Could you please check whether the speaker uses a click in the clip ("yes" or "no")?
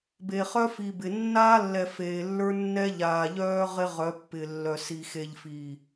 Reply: no